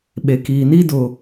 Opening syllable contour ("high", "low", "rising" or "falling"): low